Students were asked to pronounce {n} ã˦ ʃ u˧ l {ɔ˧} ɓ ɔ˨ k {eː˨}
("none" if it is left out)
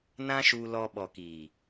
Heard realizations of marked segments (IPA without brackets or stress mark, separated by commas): n, ɔ˧, iː˨